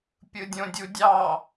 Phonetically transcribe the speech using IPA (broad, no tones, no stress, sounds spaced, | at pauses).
pʲ ɯ dʲ õ dʲ u dʲ ɑ